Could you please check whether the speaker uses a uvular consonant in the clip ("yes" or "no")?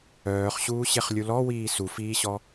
yes